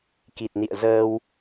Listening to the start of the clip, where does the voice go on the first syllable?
low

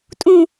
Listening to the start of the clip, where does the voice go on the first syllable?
falling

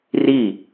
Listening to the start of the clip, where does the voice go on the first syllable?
falling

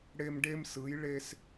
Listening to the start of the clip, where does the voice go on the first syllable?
high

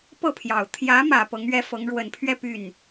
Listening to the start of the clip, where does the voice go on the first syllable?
falling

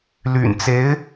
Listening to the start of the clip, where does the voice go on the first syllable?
low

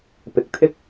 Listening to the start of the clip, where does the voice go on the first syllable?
low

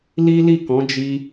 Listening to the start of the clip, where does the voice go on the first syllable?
high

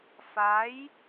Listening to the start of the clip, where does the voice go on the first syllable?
rising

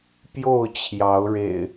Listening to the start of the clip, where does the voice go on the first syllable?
falling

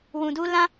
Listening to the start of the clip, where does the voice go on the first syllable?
low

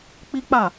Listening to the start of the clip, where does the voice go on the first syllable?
high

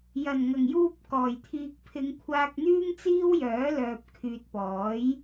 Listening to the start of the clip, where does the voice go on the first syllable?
low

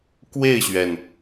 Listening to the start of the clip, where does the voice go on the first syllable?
falling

